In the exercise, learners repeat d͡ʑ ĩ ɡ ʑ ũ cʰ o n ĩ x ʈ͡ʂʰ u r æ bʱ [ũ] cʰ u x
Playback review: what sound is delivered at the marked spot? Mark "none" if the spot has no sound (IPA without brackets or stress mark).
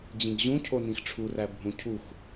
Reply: ũ